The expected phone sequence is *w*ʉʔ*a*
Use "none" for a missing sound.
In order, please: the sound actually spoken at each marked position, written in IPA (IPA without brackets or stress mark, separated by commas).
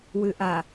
w, a